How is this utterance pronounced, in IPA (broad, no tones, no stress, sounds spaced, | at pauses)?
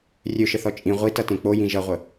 rʲ ø ʃ ə θ ɔ t͡ʃʼ ĩ ʁʷ i t ʌ t ẽ k͡p o j ĩ ʒ ʌ ʁʷ ə